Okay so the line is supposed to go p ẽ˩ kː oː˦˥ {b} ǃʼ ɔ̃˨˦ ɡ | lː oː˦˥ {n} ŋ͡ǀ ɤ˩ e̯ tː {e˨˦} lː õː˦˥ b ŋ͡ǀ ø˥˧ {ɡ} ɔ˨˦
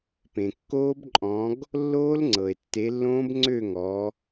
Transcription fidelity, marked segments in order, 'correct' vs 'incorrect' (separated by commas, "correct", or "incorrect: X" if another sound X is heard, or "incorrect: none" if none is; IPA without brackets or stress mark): correct, incorrect: l, correct, incorrect: ŋ